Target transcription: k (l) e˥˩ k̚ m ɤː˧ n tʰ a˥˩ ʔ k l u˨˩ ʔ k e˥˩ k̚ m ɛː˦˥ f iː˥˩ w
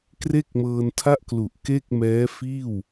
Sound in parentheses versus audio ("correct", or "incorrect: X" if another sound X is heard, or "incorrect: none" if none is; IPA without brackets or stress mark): incorrect: r